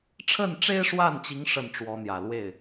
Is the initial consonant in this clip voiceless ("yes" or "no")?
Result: yes